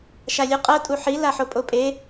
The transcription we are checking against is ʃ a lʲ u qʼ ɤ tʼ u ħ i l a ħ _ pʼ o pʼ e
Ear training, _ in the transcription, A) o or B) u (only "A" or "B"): A